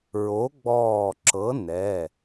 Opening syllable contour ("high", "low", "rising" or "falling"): rising